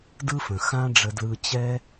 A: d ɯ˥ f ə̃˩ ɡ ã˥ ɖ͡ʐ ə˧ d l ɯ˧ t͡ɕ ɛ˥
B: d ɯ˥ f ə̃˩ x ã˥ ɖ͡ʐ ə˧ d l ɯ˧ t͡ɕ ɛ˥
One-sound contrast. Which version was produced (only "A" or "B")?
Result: B